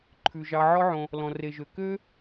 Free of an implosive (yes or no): yes